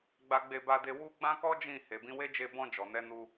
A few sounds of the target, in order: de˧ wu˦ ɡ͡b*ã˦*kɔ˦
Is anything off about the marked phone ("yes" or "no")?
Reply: no